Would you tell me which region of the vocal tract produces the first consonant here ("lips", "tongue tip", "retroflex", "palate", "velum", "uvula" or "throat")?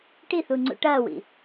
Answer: retroflex